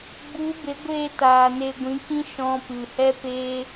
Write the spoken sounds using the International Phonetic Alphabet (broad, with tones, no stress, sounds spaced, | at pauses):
ɡ͡b u˨˦ b e˨˦ ɡʷ eː˦˨ t aː˨ n e˧ ɡʷ ĩ˨˦ k ĩ˦ ʃ ɔ̃˧ p ɨ˨ h ɛ˦ p eː˦